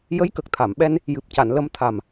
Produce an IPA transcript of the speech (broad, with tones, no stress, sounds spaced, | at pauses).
j ə˧˥ j k ə˨˩ k̚ t̪ʰ a˨˩˨ m ɓ ɛ˧ n | j ɨ˨˩ p̚ c a˨˩˨ n l ə˧ m t̪ʰ a˨˩ m